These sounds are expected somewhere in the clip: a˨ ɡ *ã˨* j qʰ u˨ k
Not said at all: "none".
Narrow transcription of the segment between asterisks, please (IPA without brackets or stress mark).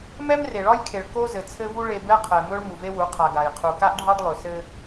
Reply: a˨